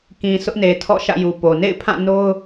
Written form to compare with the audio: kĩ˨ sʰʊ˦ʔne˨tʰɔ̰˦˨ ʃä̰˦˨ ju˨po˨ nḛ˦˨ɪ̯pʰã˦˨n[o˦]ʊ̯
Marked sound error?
no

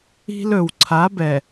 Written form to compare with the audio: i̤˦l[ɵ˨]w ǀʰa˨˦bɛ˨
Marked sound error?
no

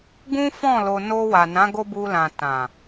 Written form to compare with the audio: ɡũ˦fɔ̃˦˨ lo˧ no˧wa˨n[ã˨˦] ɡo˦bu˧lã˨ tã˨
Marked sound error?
no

